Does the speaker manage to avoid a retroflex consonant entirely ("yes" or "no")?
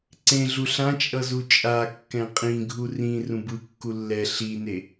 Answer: yes